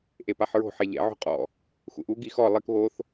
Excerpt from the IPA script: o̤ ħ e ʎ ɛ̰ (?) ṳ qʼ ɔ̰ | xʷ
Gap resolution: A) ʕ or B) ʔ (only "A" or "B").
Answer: A